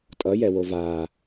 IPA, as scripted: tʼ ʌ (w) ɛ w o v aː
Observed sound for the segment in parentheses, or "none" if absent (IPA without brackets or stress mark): j